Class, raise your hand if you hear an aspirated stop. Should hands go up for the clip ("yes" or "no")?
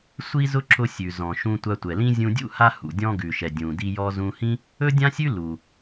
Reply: no